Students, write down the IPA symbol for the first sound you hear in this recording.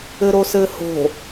ɘ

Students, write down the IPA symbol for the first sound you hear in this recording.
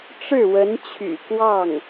ʈ͡ʂ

